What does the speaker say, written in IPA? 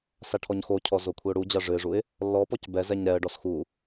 s a ʈʰ ɔ ɲ x o cʰ ɔ z o kʷʰ i ʊ̯ ɽ u d͡ʑ a ʐ ɨ ɪ̯ ʐ u ɪ̯ | lː ɔ p ɔ c b ɛ z ɛ ɲ ɾ ɛ ə̯ ɖ ɔ s x u

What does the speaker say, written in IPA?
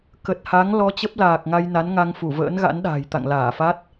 k ə˨˩ t̚ h a˨˦ ŋ l ɔ˧ t͡ɕ ə˦˥ p̚ l aː˨˩ k̚ ŋ a˧ j n a˨˦ n ŋ a˧ ŋ f u˧˩ v ə̰ː˧˥ n ɣ a̰˧˥ n ɗ a̤ː˨˩ j t̪ a̰˧˨ ŋ l aː˧˩ f a˦˥ t̚

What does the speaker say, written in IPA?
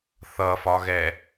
θ ʌ f ɒ ɣ ɛ

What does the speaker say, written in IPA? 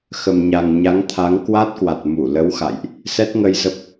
x ə˨˩ m ɲ a˨˩ ŋ ɲ a˨˦ ŋ t̪ʰ a˨˦ ŋ k w a˦˥ t̚ k w a˨˩ t̚ m u˧˩ l ə˨˦ w x a̰˧˨ j ʔ | s ɛ˦˥ t̚ ŋ ə˧ j z ə˦˥ p̚

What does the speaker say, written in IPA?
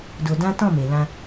d o˧ d ã˦ t ɔ̃˦˨ m e˨ l ã˧

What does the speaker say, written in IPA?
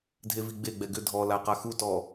dʱ e v i ɡ͡b e ɡ͡b ɛ ɡ ʏ dʱ ɔ l a q a x u t ɔ

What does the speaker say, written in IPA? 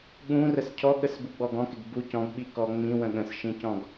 ɠ ũ r ə s cʰ ɔ ɠ ə s b u ɡ͡b ɔ ɡ ɔ̃ k ɪ ɡ b u c ɔ̃ ɡ ɓ i k ɔ ŋ͡m ĩ w ə̃ ɠ ə̃ s ʃ ĩ c ɔ̃ ɡ

